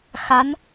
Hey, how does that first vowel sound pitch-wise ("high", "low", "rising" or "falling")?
rising